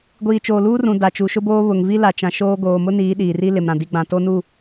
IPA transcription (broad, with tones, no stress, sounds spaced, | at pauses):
ɡʷ iː˨ t͡ʃ oː˨ l uː˦ r ũ˨ d a˨ t͡ʃ u˨ ʃ ʊ˦ b oː˦ β ʊ˨ ŋ v i˦ l a˨ t͡ʃ ã˨ ʃ oː˦ ɡ oː˨ m ʊ˦ n iː˨˦ ɗ iː˨ r i˦ l ɪ˨ m ɾ ã˨ d i˨ ɡ͡b ã˨ t o˦ n u˦˨